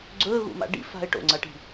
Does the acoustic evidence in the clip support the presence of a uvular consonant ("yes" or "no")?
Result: no